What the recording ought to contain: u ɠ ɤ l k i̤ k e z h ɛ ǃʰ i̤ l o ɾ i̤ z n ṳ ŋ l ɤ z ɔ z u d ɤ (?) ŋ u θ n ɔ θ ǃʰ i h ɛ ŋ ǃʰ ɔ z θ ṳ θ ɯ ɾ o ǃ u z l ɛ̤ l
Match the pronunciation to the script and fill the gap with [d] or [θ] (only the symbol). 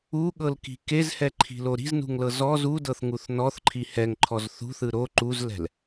θ